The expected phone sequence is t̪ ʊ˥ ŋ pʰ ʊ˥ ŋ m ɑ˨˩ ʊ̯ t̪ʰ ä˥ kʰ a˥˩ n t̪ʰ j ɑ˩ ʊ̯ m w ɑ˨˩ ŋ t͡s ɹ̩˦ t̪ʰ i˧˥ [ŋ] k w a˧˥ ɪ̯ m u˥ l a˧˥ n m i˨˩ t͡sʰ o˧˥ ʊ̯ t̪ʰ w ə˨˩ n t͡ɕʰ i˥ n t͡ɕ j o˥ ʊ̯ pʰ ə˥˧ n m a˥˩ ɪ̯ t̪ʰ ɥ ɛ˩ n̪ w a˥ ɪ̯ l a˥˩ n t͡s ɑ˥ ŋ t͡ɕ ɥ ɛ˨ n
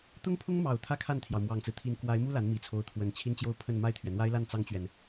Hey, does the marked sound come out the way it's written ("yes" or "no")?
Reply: no